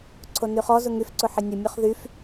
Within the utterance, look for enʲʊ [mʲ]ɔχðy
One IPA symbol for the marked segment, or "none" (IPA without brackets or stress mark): mʲ